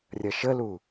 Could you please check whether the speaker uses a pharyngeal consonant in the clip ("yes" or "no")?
no